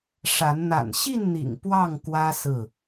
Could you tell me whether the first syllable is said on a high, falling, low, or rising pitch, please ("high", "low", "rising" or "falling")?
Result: rising